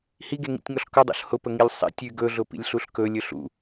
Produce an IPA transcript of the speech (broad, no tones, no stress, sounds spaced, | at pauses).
h i ɡ e ŋ ḭ tʲ ŋ ɔ ɬ k ʊ dˤ o̰ ɬ h ʊ p ə ŋ i lʲ sˤ ḭ tʲ y ɡ ɵ ɮ ʊ p ḭ lʲ ɬ u ɬ k ɵ lʲ ɵ ɬ ṵ